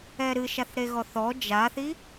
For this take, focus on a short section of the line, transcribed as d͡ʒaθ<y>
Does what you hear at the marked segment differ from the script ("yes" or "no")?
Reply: yes